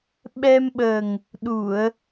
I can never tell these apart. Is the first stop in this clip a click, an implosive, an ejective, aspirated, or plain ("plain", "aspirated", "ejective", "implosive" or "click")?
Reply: implosive